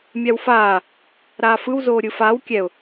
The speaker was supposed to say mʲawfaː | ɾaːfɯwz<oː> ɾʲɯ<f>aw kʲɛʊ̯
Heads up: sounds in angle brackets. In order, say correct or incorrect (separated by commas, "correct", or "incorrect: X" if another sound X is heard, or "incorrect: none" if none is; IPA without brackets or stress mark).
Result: correct, correct